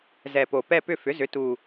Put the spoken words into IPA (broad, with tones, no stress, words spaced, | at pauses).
zɛ˨˩po˨˩ pɛ˦˨pʏ˦˨ fʏ˩˥zʏ˩˥ tu˨˩